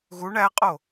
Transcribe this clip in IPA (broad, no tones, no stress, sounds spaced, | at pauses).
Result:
ɣ u ɳ æ qʼ o